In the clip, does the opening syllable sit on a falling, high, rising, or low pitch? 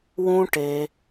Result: high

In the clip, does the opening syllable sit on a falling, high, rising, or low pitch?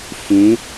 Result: rising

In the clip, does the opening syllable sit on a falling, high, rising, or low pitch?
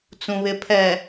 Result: low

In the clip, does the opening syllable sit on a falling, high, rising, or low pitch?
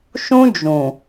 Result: high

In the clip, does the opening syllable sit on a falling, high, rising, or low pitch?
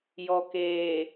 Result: low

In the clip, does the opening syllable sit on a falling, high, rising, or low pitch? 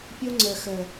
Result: high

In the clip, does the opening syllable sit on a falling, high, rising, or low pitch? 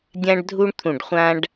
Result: high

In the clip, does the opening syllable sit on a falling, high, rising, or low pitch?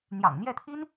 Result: low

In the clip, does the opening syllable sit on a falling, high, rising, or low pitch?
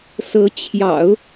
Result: rising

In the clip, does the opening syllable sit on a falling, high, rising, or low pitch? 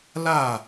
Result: falling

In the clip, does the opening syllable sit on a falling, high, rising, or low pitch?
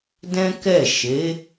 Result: high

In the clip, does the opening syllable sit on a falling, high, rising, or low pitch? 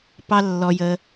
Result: high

